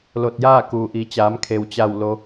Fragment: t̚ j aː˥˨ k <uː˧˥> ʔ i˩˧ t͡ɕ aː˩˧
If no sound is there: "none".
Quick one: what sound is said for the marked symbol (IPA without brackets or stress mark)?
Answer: uː˩